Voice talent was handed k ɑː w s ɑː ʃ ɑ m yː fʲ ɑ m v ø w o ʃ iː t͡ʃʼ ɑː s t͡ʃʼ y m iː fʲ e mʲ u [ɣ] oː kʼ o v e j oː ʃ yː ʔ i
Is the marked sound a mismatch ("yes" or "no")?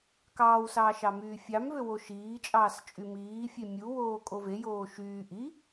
yes